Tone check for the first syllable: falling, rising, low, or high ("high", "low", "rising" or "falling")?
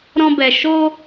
high